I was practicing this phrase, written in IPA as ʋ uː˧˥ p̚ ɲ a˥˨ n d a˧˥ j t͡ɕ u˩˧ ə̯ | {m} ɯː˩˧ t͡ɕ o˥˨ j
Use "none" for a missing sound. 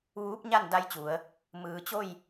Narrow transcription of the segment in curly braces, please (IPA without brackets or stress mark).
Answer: m